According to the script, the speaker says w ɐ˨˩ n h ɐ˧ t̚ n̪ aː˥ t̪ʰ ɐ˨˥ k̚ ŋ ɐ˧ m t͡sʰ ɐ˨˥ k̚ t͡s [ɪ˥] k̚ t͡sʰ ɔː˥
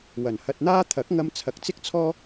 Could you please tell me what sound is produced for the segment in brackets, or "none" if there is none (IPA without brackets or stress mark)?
ɪ˥